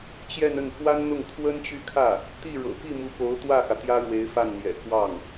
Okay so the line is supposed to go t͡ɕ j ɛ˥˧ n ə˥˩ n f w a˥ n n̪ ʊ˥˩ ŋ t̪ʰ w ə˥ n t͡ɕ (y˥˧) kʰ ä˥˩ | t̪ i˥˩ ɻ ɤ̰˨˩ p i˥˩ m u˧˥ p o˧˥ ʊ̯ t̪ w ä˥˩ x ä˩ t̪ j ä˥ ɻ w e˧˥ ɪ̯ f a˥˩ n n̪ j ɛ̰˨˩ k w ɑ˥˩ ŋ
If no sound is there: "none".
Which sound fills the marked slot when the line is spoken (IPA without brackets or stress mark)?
y˥˧